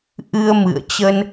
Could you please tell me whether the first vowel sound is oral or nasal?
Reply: oral